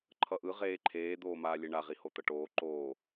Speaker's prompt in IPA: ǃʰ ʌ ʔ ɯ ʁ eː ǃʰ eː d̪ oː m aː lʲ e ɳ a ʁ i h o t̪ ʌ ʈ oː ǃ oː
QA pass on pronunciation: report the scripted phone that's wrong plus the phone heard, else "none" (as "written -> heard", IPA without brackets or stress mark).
none